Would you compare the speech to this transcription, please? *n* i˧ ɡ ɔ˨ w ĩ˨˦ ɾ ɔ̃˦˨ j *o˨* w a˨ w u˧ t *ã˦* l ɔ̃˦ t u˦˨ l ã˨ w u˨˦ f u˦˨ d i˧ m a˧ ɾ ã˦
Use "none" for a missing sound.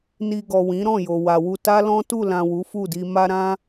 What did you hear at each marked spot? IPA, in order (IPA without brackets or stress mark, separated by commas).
n, o˨, a˦